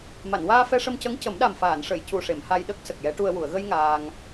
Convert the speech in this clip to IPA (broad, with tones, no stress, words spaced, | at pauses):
ma˨˩˨nwaː˧ fɛ˧ʂə˧mcə˧˥ŋ cə˨˩˦mɗa˨˩mfaː˨˩˨nʂə˨˩˨j cu˨˩ʂe˨˩˨m ha˧jɗə˦˥k̚ sə˨˩k̚jɛ˧˥ʈu˧ə̯ wu˨˩˨ə̯ɣə˧j ŋaː˧ŋ